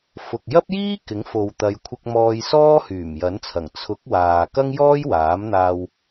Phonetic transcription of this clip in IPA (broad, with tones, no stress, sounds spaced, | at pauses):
f ʊ˨ k̚ j ɐ˥ p̚ j iː˥ k ɪ˨˥ ŋ f o˨ w t̪ ɐ˨˧ j kʷʰ ɪ˧ k̚ m ɔː˧ j s ɔː˥ h yː˨˩ m j ɐ˨˥ n t͡sʰ ɐ˨˩ ŋ t͡sʰ ʊ˨˥ k̚ w aː˨ k ɐ˥ ŋ j ɔː˥ j w aː˨˥ m n̪ aː˧ w